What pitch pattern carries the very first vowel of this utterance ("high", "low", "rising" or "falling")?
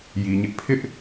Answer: low